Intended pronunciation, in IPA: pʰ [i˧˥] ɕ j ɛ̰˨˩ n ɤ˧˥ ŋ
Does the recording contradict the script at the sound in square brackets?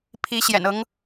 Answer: no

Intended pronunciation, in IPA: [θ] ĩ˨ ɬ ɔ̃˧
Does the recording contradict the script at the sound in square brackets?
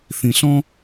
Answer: no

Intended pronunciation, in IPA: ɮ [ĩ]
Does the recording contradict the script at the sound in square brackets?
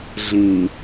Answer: no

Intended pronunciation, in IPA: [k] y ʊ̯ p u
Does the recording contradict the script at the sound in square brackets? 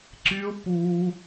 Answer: yes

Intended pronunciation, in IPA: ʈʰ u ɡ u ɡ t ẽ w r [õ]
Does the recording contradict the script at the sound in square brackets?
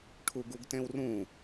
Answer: yes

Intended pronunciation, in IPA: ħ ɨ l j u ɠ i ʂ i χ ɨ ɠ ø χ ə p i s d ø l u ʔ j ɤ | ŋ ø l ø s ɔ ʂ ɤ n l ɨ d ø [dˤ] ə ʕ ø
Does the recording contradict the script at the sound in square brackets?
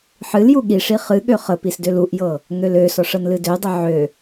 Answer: no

